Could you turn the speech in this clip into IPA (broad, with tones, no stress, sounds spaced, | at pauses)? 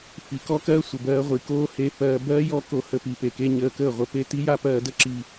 f i˨ k ɔ˦ k ɜː˦ sʷ ə˨ b ɜː˧ ʁʷ i˨ k oː˦ h e˧ f ɜː˧ b ɜː˦ j ɔ˦ k o˧ h ə˧ p i˨ p e˨ k e˦ ɲ əː˧ k əː˦˨ ʁʷ ə˦ p e˦ t i˦ j a˦ p ɜː˧ d ə˦ ǁ i˧